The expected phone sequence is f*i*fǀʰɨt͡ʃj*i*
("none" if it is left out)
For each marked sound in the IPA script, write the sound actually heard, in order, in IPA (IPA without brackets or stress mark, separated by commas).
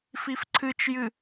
i, ɨ